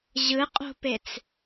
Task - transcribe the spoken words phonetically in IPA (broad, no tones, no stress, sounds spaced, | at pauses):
ʑ ɯ qʼ o̤ p e t͡s